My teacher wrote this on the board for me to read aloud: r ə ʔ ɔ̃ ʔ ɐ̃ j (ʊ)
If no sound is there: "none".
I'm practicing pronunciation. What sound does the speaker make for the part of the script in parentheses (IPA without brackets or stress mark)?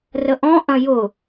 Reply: ʊ